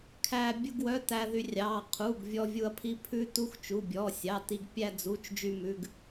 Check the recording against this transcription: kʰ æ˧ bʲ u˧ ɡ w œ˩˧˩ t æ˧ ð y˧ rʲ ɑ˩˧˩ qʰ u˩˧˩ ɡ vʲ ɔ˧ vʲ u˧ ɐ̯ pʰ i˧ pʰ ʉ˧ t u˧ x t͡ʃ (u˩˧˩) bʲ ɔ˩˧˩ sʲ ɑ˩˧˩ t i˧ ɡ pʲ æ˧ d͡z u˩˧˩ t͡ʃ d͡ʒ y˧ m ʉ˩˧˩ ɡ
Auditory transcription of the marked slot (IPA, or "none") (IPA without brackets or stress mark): u˩˧˩